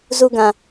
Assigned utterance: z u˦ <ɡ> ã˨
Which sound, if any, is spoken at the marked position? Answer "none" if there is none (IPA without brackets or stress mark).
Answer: ɡ